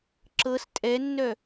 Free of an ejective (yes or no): no